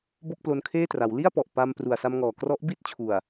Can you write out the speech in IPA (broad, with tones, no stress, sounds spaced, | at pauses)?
b o˥˩ k̚ p l o˧ n kʰ eː˥˩ t r a˩˦ w l i˥˩ a̯ p ɔ˨˩ ʔ p a˧ m p r u˨˩ a̯ s a˧ m ŋ ɔː˨˩ k r ɔ˦˥ ʔ b i˥˩ t̚ t͡ɕʰ u˨˩ a̯